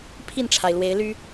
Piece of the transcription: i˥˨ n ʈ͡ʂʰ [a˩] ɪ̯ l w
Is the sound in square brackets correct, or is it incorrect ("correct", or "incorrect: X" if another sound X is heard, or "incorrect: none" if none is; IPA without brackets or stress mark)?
correct